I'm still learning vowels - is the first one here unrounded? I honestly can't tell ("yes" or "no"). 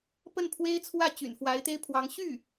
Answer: yes